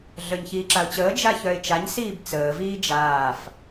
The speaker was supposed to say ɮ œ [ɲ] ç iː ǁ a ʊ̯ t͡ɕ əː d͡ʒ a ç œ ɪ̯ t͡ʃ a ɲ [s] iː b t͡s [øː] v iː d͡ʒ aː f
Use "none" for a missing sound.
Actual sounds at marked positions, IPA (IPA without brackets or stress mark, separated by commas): ɲ, s, əː